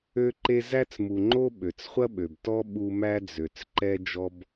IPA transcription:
ø˧ ǃ e˧ z æ˧ t͡s m u˨ ŋ͡ǃ o˧ ɓ ø˨ t͡s χʷ ɐ˦ ɓ ø˨ b t ɔ˦ ɓ u˦ m æ˧ d͡z ø˨ t͡s ǃ ɛ˧ d͡ʒ ɔ˦ b

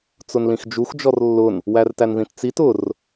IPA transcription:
t͡s ʊ n l ĩ x d͡ʒ u x d͡ʒ ɔ r lː ʊ n | w æ r t æ n ð ĩ t t͡s i t ʊ r

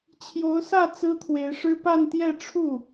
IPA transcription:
t͡ɕʰ j o˧˥ ʊ̯ s ä˥˩ t͡s ɹ̩˥ t̪ʰ w e˧˥ ɪ̯ ʂ ɻ̩˥ p a˥˧ n t̪ j ɛ˥˧ ʈ͡ʂʰ u˥˩

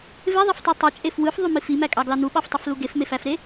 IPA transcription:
v e ðˤ e f tˤ e tˤ o t͡ʃʼ e f w ɯ f ðˤ y m i f i m æ kʼ ɑ ɡ l ɑ n u ɓ ɑ f tˤ y f l u ɡ e f m e f æ f ɾ e

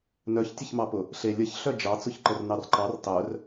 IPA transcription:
n œ ç tʲ ə ç m ɑ p ʊ | ɬ e lʲ ə ç ɬ œ d͡ʒ ɑ t͡s ʊ ç ǃ ə r n ɑ r ǃ ɑ r tˤ œ r

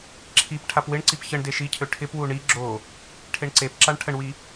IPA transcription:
ǁʰ i p ʈʰ a p w ɪ ɳ ǀ i p ç ə ɳ d e ʃ i cʰ ø ʈʰ ɪ p w u ɳ i ɡ͡ǁ o | ʈʰ e ɳ ǀ e p ǁ a ɳ ʈʰ ə ɳ w i

